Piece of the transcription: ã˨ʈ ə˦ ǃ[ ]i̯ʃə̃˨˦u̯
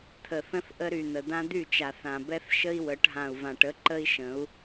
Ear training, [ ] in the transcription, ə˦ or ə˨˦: ə˦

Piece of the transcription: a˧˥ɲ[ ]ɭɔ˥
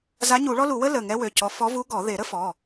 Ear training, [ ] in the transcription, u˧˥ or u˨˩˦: u˨˩˦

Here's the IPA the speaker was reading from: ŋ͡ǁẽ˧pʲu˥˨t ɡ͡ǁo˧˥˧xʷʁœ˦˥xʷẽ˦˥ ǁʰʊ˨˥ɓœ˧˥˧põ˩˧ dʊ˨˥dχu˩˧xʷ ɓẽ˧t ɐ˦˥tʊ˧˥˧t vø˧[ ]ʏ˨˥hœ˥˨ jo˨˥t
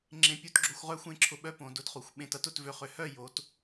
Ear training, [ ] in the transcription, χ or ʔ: χ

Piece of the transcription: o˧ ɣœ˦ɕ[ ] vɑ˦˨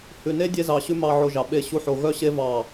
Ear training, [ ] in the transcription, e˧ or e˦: e˦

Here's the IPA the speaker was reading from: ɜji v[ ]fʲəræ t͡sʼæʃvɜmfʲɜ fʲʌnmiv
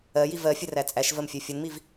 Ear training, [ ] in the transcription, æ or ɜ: ɜ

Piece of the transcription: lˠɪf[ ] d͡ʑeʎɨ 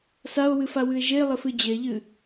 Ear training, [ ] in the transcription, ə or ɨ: ɨ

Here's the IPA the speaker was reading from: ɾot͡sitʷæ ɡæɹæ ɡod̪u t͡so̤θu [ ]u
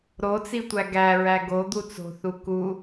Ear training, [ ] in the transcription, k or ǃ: k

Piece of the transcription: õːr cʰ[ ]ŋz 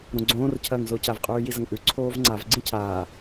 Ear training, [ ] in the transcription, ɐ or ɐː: ɐː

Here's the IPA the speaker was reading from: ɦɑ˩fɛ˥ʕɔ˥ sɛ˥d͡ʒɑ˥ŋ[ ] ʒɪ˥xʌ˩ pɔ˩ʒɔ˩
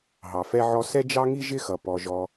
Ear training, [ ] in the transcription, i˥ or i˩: i˥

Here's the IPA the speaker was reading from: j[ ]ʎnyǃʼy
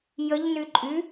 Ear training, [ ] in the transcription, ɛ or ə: ə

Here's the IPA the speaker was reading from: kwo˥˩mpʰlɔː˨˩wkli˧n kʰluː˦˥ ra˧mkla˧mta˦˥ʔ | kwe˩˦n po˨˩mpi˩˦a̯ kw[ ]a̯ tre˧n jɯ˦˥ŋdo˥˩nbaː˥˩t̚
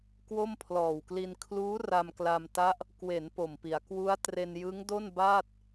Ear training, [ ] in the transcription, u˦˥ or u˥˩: u˦˥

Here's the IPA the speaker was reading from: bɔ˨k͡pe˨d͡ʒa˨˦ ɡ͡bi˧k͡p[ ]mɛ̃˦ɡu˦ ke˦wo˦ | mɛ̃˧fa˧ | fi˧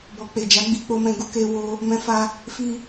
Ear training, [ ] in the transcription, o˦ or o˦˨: o˦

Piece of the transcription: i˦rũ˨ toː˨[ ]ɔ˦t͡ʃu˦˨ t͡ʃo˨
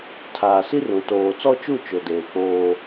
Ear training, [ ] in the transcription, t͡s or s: t͡s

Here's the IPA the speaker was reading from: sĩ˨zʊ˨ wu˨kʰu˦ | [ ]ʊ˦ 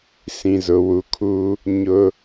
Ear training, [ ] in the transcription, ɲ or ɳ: ɲ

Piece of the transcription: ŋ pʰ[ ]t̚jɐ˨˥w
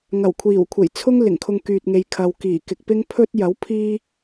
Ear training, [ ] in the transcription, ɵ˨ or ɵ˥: ɵ˥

